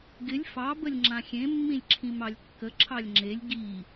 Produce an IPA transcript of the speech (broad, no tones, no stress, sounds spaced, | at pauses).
ɡ ɪ lʲ f ɑ b ə lʲ ŋ͡ǁ ã xʲ ẽ mː ĩ lʲ ǁʰ ĩ m ɑ lʲ kː ə ǁʰ ɑ lʲ ŋ͡ǁ e lʲ ɡ i